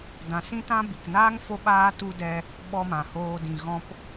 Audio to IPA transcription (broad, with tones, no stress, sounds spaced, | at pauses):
d ã˨ s ĩ˦ t ã˦ b i˨ k n aː˦ ŋ f o˦ ɓ aː˦ t u˧ d ɛ˧ | ɓ ɔ˧ m ã˨ h oː˧ d ĩ˨ ɣ ɔ̃˧ p